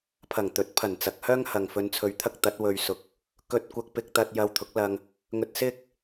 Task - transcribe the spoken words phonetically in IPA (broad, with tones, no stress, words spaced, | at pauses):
pʰɐ˨˩ŋt̪ɵ˨˥t̚pʰɐ˨˩nt͡sɐ˨k̚ hœː˥ŋhɐ˨ŋ fɵ˧nt͡sʰɵ˧ɥt̪ʰɐ˥k̚ t̪ɐ˨˥t̚wɵ˧ɥ sʊ˧k̚ | kɵ˧t̚kʷɐ˧k̚pɪ˧k̚t̪ɐ˧t̚ jɐ˧wt̪ʰʊ˨˥k̚lɐ˧ŋ | ŋɵ˧t̚sɪ˥k̚